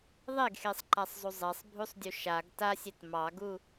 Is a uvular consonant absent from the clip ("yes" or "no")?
yes